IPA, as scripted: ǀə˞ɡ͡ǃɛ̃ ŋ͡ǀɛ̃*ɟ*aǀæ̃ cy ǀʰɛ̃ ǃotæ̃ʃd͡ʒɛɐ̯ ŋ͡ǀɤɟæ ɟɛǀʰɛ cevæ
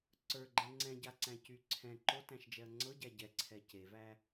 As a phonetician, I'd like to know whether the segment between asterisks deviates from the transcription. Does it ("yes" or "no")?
no